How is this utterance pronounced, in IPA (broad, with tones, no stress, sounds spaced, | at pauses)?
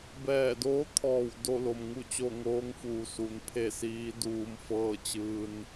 b ɛː˧˩ d oː˧˥ t̪ʰ ɔː˧˩ w d o˥˨ l o˩ m ŋ u˥˨ t͡ɕ o˥˨ ŋ oː˧˥ ŋ f uː˩ s u˩ n pʰ e˥˨ s iː˧˥ d uː˧ m f ɤː˥˨ t͡ɕ ɯː˧ n